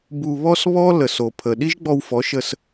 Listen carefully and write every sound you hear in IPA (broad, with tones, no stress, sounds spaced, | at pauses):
b u˧ β ɔ˦ s β ɔ˦ l ə˨ s o˨ pʰ ə˨ ɗ i˦ ʒ ɡ͡b ɔ˧ w f ɔ˨˦ ʃ ə˧ s